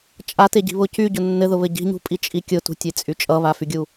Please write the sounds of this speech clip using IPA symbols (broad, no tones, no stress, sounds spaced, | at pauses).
t͡ʃʼ a t e ɟ i̤ β ʊ c y ɟ ʊ nː ɘ ð ʊ β ɘ ɟ i̤ ɲ ṳ pʼ i t͡ʃʼ i kʲ ʊ t ṳ tʲ e t͡sʼ y t͡ʃʼ ʌ β a f y ɡʲ u